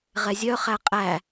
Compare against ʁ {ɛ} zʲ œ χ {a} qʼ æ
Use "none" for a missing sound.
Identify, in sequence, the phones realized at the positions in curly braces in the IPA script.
ɛ, æ

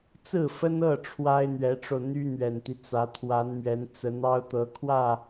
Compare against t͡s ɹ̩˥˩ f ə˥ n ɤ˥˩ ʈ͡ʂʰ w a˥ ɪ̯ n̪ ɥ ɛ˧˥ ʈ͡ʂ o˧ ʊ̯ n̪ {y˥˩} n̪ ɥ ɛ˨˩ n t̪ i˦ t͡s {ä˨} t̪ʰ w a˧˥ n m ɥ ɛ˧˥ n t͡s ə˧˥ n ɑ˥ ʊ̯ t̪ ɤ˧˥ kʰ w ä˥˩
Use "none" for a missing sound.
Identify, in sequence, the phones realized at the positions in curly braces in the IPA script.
y˥, ä˧˥

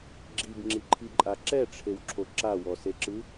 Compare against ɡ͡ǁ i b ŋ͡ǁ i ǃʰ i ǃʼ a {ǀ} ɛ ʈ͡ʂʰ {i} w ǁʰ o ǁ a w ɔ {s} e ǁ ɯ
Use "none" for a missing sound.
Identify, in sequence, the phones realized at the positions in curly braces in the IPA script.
ǁ, e, s

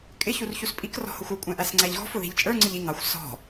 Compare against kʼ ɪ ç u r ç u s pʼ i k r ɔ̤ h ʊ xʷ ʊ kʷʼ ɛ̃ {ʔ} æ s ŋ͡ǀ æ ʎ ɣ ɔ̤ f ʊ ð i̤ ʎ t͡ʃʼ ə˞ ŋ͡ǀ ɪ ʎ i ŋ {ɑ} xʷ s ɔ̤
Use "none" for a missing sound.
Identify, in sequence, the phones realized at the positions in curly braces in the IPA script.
ʔ, ɑ

